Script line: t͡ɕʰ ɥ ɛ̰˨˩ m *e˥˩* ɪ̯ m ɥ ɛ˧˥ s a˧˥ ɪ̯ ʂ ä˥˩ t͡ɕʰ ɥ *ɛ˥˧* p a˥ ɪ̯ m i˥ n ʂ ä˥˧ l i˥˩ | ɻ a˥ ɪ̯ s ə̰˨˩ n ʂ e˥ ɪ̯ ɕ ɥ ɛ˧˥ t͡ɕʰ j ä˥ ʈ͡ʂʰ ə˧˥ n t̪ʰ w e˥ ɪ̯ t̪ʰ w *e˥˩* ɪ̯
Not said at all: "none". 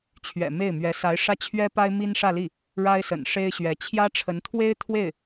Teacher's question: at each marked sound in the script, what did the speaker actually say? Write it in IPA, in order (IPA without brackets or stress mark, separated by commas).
e˥˩, ɛ˥, e˥˩